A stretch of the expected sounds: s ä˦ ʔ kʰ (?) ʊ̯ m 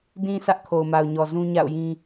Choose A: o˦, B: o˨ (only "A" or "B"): B